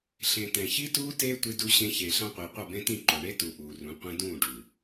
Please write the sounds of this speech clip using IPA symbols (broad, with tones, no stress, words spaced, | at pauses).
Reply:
ɬẽ˨ tɛ̃˨çi˦tuː˦ teː˦ tʷi˦du˦ɕẽ˦ çeː˨ɬã˦qʷiː˨ qʷʌ˦˨bẽ˦tĩ˦˨ǃo˨ ɳe˦ tu˨ ʔuː˨rũ˨˦qʷẽ˦ dũː˦˨ɖu˨